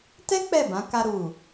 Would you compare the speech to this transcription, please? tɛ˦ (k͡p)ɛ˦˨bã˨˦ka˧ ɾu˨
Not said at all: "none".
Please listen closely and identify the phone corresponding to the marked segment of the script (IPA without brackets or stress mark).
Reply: k͡p